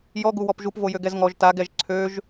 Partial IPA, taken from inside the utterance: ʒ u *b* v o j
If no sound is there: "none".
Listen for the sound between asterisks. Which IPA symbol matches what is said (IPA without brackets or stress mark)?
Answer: p